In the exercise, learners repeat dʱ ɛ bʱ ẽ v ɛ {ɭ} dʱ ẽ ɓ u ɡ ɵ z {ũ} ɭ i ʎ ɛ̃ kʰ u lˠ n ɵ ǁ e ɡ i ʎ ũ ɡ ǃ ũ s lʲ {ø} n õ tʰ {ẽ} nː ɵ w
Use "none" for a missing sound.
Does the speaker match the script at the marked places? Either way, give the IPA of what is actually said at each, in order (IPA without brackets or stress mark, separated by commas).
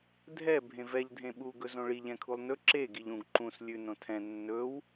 ʎ, õ, ʉ, ɛ̃